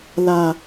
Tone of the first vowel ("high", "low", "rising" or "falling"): low